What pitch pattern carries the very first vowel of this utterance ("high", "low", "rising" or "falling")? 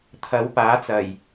rising